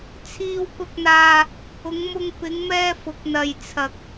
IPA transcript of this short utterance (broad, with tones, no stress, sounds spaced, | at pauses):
t͡sʰ iː˨ w k ʊ˨ k̚ n̪ aː˨ | ʊ˨˧ ŋ m ʊ˧ ŋ p ɪ˨˧ ŋ m ɛː˧ f ʊ˨˥ k̚ n̪ ɐ˨ j t͡sʰ ɐ˧ k̚